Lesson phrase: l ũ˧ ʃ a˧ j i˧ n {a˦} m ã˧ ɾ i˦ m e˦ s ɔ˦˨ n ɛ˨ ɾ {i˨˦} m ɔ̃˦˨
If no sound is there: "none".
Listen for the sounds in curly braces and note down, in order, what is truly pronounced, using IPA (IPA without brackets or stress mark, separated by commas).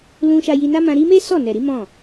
a˦, i˨˦